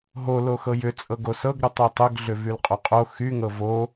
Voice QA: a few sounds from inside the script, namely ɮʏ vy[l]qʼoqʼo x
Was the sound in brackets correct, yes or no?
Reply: yes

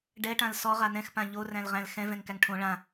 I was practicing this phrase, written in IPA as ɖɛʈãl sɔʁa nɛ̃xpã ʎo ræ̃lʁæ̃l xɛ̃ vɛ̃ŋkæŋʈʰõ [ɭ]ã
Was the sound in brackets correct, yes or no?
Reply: yes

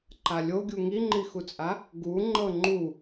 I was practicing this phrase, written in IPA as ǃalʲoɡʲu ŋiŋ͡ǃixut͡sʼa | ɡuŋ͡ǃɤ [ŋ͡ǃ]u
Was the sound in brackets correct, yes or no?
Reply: yes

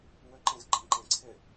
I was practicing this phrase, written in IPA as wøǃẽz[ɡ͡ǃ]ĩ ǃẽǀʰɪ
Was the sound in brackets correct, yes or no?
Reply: yes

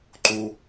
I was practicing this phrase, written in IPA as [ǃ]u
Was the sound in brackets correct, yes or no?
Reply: yes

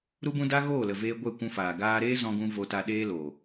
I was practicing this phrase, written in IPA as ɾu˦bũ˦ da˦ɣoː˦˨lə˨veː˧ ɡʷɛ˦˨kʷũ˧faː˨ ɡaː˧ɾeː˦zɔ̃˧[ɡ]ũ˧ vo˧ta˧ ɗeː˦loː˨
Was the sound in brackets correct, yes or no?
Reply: yes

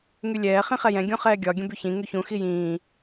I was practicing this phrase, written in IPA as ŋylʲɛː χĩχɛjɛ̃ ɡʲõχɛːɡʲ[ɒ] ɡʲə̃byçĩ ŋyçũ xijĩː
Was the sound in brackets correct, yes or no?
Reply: yes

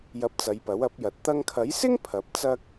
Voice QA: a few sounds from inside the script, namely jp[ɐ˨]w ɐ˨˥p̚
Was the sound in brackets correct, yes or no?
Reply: no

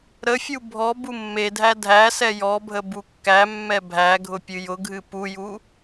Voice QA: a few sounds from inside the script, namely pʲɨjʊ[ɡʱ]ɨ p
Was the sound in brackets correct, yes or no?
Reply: yes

